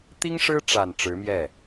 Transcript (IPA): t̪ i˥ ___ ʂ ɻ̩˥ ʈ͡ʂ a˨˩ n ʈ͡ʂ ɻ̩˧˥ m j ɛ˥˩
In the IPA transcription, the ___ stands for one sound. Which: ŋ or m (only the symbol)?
ŋ